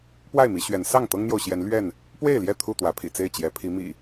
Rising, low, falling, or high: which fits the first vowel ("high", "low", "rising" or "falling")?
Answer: falling